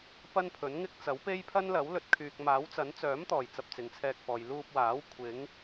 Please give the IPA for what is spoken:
p ɐ˥ n pʰ ɵ˨˥ n ŋ ɪ˥ k̚ t͡s ɐ˨˥ w p e˥ j pʰ ɐ˥ n l ɐ˨˥ w l ɵ˧ t̚ kʰ yː˨ k̚ m aː˨˥ w t͡s ɐ˨˥ n t͡s œː˨˥ m t̪ ɔː˨˩ j t͡s ɐ˧ p̚ t͡s ɪ˨˧ ŋ t͡sʰ ɛː˧ k̚ f ɔː˨ j l uː˧ p̚ w aː˨˥ w kʷʰ ɪ˨˥ ŋ

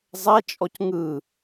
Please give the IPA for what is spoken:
zˤ ɛ t͡ʃʼ ɔ c ŋ ɯ

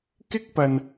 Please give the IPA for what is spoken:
k ɪ˥ k̚ p ɐ˧ n

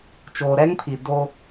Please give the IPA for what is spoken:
t͡ʃ oː˨ ɾ ɛ˦ ŋ pʰ i˨ d o˦

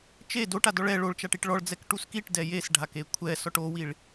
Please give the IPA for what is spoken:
t͡ʃ e d o ʈ a d ɔ ɭ ɛ ɭ o ɭ t͡ʃ a ʈ i ʈ ɭ ɔ ɭ d͡z ɛ k ʈ u s k i ʈ d ɛ j e s ɖʱ a k e kʷʰ ɛ s ɔ ʈ o w i ɭ

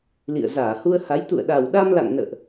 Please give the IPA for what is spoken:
l ḭ˧˨ ə̯ z aː˧˩ h u˧ ə̯ h a˨˦ j t̪ ṵ˧˨ ə̯ ɗ a˨˩ w ɗ a˧ m l a̰˧˨ ŋ n ə̰ː˧˨ ʔ

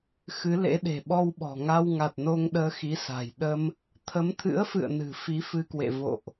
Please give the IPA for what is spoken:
x ɨ˨˦ l ḛ˧˥ ɗ e̤˨˩ ɓ ɔ˧ w ɓ ɔ̤˨˩ ŋ a˧ w ŋ a˨˩ t̚ n o˧ ŋ ɗ əː˧ x i˨˦ s a̤˨˩ j ɗ ə˧ m | t̪ʰ ə˨˦ m t̪ʰ ɨ̰˧˥ ə̯ f ɨ̰˧˨ ə̯ n ɨ̤˨˩ f i˨˦ f ɨ˧ k w ḛ˧˨ v o̰˧˨ ʔ

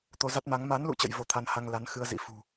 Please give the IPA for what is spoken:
t̪ o˧ z a˦˥ t̚ m a˨˦ ŋ m a˨˦ n l ṵ˧˨ t͡ɕ ə̰˧˨ j v o˧ t̪ʰ a˧ n h a˧ ŋ l a˨˦ n x ɨ˧ ə̯ z ḭ˧˥ f ṳ˨˩

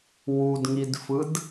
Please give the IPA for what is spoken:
w u d ŋ i d f ɯ d

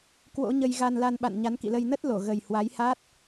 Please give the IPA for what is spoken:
k w o̰˧˥ ɲ ə˧ j ɣ a˧ n l a˧ n ɓ a̰˧˨ n ɲ a˨˦ n k ḭ˧˨ l ə˧ j n ə˦˥ t̚ l o˧˩ ɣ ə˨˩ j h w a˨˦ j h a˦˥ t̚

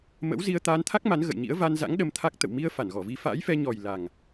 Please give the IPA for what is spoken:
m ə̰˧˥ w z i˧ ə̯ t̪ aː˧ n t̪ʰ a˦˥ k̚ m a˨˦ n ɣ ə̰˧˨ j ɲ ḭ˧˥ ə̯ v a˧ n z a̰˧˥ ŋ ɗ ə˧ m t̪ʰ a˦˥ k̚ t̪ ə̰˧˨ w m i˧ ə̯ f a˧˩ n ɣ ɔ˧˩ v i˨˦ f a̰ː˧˥ j f ɛ˧ ɲ ɔ˨˩ j l a˨˩ ŋ

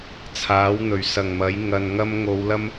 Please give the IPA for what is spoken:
t͡sʰ aː˨˥ w n̪ ɵ˨˩ ɥ s ɐ˨˩ ŋ m ɐ˨˥ j ŋ ɐ˧ n ŋ ɐ˥ m ŋ o˨˧ w l ɐ˥ m

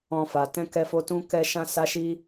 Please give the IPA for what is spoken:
ɔ̃˧ f a˨ t ɛ̃˧ k ɛ˧ f o˧ t ũ˦ k ɛ˦ ʃ ã˦ s a˦ ʃ i˦

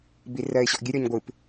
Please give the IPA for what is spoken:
b i r ɜ ɪ̯ ɕ ɔ ʔ ɡʲ ɨ ɾʲ ɔ ɲ ɡʷ ɨ p

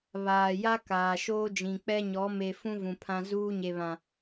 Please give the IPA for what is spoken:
β aː˨ j a˦ k aː˨ ʃ oː˦ d͡ʒ ĩ˨ k͡p ɛ˦ ɲ ɔ˨˦ m e˨ f ũ˦ v ũ˨ pʰ ã˦ z uː˦ ɲ e˨ β ã˨

